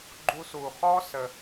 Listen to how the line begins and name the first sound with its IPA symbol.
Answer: ɡ͡ǃ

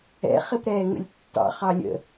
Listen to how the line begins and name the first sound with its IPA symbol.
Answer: ɛ̰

